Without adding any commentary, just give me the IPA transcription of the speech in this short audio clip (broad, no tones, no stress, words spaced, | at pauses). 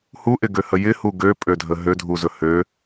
huʔɪɡøhə jɪhu ɡøpʼødʱə ɦødʱuzɵ hø